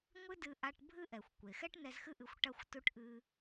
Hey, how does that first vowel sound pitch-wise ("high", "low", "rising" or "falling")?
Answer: high